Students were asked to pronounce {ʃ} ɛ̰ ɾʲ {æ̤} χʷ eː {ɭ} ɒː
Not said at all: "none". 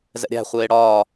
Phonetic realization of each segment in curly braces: z, æ̤, ɽ

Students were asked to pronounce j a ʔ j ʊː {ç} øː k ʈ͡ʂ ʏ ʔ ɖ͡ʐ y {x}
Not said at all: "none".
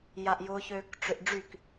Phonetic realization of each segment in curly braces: ç, k

